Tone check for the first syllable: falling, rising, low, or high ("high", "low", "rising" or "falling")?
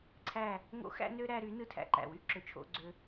falling